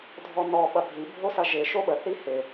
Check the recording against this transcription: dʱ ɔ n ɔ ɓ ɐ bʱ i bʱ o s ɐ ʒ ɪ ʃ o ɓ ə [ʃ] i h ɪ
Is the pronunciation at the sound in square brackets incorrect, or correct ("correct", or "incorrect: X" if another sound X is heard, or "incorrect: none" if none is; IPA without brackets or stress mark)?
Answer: incorrect: θ